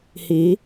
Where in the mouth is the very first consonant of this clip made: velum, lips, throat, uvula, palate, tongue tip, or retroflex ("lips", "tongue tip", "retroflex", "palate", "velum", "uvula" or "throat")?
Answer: throat